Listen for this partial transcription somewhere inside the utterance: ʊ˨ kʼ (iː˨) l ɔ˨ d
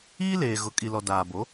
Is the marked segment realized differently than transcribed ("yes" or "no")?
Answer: yes